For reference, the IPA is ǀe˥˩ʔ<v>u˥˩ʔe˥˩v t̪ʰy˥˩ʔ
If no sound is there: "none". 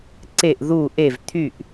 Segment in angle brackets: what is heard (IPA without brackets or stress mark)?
ð